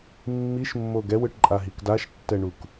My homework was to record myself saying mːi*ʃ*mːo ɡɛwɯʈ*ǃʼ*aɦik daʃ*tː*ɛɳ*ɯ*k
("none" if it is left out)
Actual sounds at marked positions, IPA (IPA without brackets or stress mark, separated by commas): ʃ, ǃʼ, tː, u